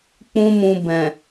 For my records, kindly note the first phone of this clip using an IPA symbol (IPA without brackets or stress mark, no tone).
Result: k͡p